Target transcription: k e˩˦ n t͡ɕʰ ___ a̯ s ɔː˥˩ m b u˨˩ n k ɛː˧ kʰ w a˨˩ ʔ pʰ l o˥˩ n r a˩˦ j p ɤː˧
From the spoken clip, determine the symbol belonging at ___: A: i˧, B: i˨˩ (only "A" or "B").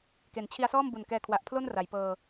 A